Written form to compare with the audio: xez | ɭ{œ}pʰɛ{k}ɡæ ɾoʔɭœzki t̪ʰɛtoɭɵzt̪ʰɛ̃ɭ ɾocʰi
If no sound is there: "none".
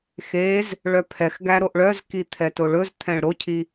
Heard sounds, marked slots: œ, x

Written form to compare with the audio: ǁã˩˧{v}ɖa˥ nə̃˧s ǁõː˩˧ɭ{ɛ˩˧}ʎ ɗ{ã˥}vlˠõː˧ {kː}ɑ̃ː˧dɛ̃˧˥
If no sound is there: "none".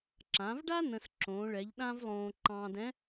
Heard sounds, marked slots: v, ɛ˩˧, ã˥, ǃ

